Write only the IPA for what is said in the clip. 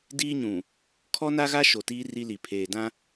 d iː˦ ɲ ũ˨ | kʰ ɔ˦ n a˦ ɣ a˦ ʃ o˨ t iː˦ r i˦ l i˨ pʰ eː˨ d ã˦

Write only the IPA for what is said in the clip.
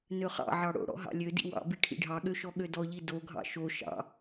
n ø χ ɑ̰ ʕ ɑ ɽ o̰ ɽ ɔ̰ ɦ ɑ̰ lʲ ø d ḭ w ɑ̰ b i ʈʰ ḭ ɖʱ ɑ ɠ ø ʃ ɔ ɠ ø d ɔ ʎ i d o ɡʱ ɑ̰ ʃ o ʃ ɑ̰

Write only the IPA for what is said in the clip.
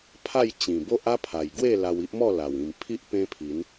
pʰ a˥˧ j t͡ɕ ĩ˨˩ b o˦ ʔ a˦ pʰ a˨˩ j ɡ w e˥˧ l a˧ w i˦ ʔ m ɔ˥˧ l a˨˩ w ĩ˨˩ m pʰ i˦ ʔ p ẽ˦ pʰ i˨˦ n

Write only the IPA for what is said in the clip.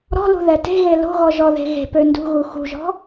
ɾ ɔ̤ l ṳ ð ɛ t e̤ ɣ e l o̤ ɣ ɔ ʒ ɔ ð e̤ ɣ e̤ p ø n d ṳ ɣ u x ṳ ʒ ɔ̤

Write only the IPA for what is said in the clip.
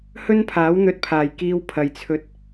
h ɵ˥ n pʰ aː˨˥ w n̪ ɵ˧ t̚ pʰ aː˨ j k iː˥ w pʰ ɐ˧ j t͡sʰ ɵ˥ t̚

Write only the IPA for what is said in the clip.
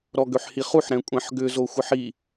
ɾ ɔ ɡ ø ħ h i χ u ħ ɾ ɛ̃ kʷʼ ɛ̃ ħ ɡ ʏ z o xʷ ə ħ i

